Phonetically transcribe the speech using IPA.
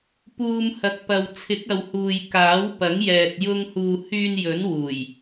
p uː˧ m h ɐ˧ k̚ p ɐ˧ w t͡sʰ ɪ˨˥ k̚ ɐ˨ w h uː˨ j k aː˨˥ w p ɐ˨˥ ŋ j ɛː˨ t̚ j ʊ˧ ŋ h uː˨ h yː˧ n j ɵ˨˥ n w uː˨˩ j

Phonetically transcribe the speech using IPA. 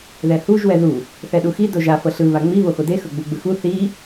ð ɛ h u ʒ w ɛ ð u | θ ɛ ɗ u x i d o ʒ a f ɤ ɬ ɯ β a ŋ͡m i β o x o d e x ɤ ɡ͡b u ɡ͡b ɯ x u θ i

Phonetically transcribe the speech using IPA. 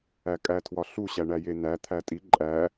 æ kʼ æ tʰ w ɒ ɬ u ɕ æ ɳ æ j e n æ t̪ʰ æ tʼ i ǃʼ æ

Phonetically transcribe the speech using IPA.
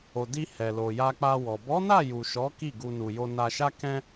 o˨ d i˧ h ɛ˨ l o˨ j a˧ k͡p a˧ w ɔ˨ b ɔ˨˦ n a˦˨ j u˨ ʃ ɔ˨˦ k i˦˨ ɡ u˧ n u˨ j o˧ n a˧ ʃ a˦ k ɛ̃˦

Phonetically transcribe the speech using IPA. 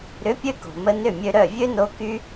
ɾ ʏ˨˦ pʲ ø˧ k o̤˨ m ə˧ n ʏ˦˨ mʲ ø˧ ɾ œ˦˨ vʲ ø˦ n o˧ k y˦

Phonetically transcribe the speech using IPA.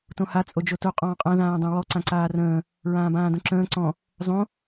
t õ h a t͡sʼ o d͡ʒ o t o qʼ ɔ̃ː qʼ ã ð ãː dˤ õ w ɔ ǀ ã ǀ aː r ə̃ː | ɹ ãː b ãː d õ ǁ ə̃ː ǀ ɔ̃ | zˤ õ

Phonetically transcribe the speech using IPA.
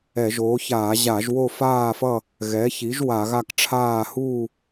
ɛ˧˩˧ ʒ oː˩˥ ç aː˧˩˧ ʑ a˧˩˧ ʒ w o˥˨ f aː˥˨ f ʌ˥˨ | ɣ ɛ˩˥ ç i˩˥ ʒ w a˧˩˧ ɣ a˥˨ k ʈ͡ʂʰ aː˥˨ h uː˥˨

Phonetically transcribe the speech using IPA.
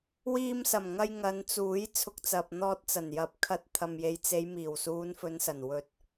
w iː˧ m s ɐ˨˩ m ŋ ɐ˧ j ŋ ɐ˨˧ n t͡s uː˨˥ j t͡sʰ ʊ˨ k̚ t͡s ɐ˨ p̚ n̪ ɔː˧ t̚ t͡s ɐ˨˩ n j ɐ˨ p̚ kʰ ɐ˧ t̚ t̪ʰ ɐ˨ m j e˨ j t͡s e˨˧ j m iː˨˩ w s uː˨˧ n f ɵ˨˧ n s ɐ˨˩ n w ɵ˨˥ t̚

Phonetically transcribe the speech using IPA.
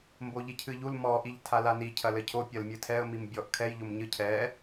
m b o ʎ i cʰ ɨ ʎ u l m ɔ ʔ i ʎ tʰ a l a n i cʰ ɐ l ɘ cʰ o pʲ ɐ l mʲ ɨ tʰ ɛ ə̯ m i m bʲ ɔ ʔ kʰ ɛ j ʎ o m ɲ ɨ cʰ ɛ

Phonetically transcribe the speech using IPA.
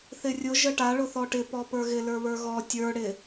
θ ɪ rʲ ʊ ʒ ə ʈ a ɭ ʊ θ ɔ ʈ ɪ p ɔ p ə˞ ɣ ɪ l ə˞ β ə˞ ɣ ɔ tʲ ə˞ ɽ ɪ

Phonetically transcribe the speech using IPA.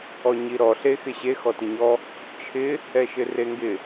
ɔ ɲ i ɾ ɔ ɬ e x ɪ ɕ e x ɔ t ɪ ɲ ɔ | t͡ʃʰ ɪ | ɛ ʃ ɪ r e ŋ ɡ ɪ

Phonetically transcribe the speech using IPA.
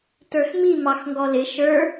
t ə˞ x m i m ɑ x ŋ ɡ ɔ l ɪ ʃ ə˞

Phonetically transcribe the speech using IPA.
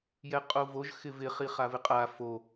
j ɛ qʼ o v o ʒ x ɪ v ɪ χ i χ a v ɪ qʼ a f o

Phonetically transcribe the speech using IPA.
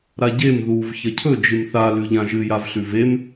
ɾ a ɟ e m ð u v ç ɐ cʰ ɵ d͡ʒ ɨ m θ a l ʉ ʎ ã ʒ ɨ j a v ɬ ʉ v e m

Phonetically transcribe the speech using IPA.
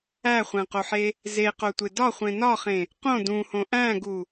æ χʷ æ̃ q o ħ e | z e q o tʷ e d ɒ χʷ ẽ n ɒ χ ẽ | q õ d ũ h õ ʔ æ̃ ɡ u

